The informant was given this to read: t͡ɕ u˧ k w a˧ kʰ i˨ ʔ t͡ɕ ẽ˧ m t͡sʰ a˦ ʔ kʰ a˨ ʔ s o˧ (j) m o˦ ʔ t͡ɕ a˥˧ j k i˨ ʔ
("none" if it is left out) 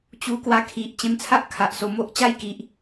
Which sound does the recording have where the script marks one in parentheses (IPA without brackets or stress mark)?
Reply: none